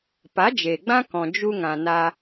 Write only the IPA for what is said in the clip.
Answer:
pa˨˦ d͡ʒe˨ɡ͡bã˦kɔ̃˨ d͡ʒu˧ŋã˨ na˧

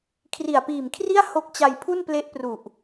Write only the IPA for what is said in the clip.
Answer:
kʰri˨˩a̯piː˨˩mkʰri˥˩a̯ ho˦˥k̚t͡ɕa˧jpʰu˥˩n ple˦˥ʔpru˨˩ʔ

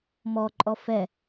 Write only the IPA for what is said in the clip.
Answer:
mɔǃʼɔ fɛ

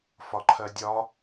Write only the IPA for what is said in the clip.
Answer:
fɒǃʰɜdʲɒ

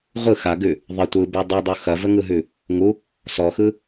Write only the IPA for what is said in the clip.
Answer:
ʁʷɯ xaɡʉ | ðˤə tʷɯbʉ dˤʉdˤu xɐvəŋɯɦʉ | ŋu | sɔxɯ

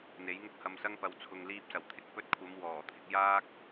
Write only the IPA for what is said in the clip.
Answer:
n̪e˨˥jŋʊ˥k̚hɐ˧msɐ˥ŋ pɐ˨wt͡sʰʊ˨ŋ liː˧p̚sɐ˨˩wt̪ʰɪ˥k̚ pɵ˧t̚kʷʰɐ˨˧m wɔː˨˩t̪ʰɪ˧k̚jaː˥k̚

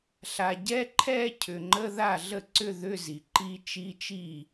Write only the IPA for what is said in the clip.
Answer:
ɬa˨ɟɛ˧˥˧ǃʰɛ˥˧ cʰʏ˨ŋ͡ǃə˧˥˧ða˥˩ ɮə˥˩ǀʏ˥˧ ðʏ˧˥˧zi˨ ǃi˦˥ t͡ʃi˧˥˧t͡ʃi˥˩

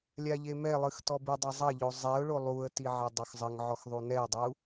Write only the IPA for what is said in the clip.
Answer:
lʲaʎemɛlˠɨx tɔbɨdˤɛ zˤɐʎo zˤɛʊ̯ɭo lˠuə̯ti ʕɛdˤoxzˤɘŋʕɔx ðˤunɛʊ̯dˤu

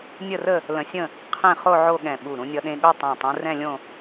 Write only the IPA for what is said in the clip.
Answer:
nʲə˥˧rə˥˧ | lə̃˧sʲə̃˥˧ | qʰẽ˥˧χo˥˧ ʕo˥˧ɠɛ̃˧˩ɓu˧˩ ɾũ˧nʲʌ˧ɗẽ˧ɠo˥˧ tˤɛ̃˧˩tˤũ˧ rɛ̃˥˧lʲõ˥˧

